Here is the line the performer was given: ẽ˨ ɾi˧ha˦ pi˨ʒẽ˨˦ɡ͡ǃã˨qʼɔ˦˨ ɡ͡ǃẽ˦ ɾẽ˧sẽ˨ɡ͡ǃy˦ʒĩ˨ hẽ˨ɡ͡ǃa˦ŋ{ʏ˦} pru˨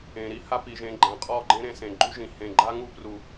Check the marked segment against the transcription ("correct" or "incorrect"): incorrect